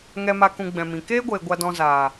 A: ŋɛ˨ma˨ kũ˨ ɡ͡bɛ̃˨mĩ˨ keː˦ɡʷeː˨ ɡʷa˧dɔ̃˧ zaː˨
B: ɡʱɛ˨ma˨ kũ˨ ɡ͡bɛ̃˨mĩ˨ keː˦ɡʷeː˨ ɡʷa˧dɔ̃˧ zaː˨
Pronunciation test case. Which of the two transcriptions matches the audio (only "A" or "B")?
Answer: A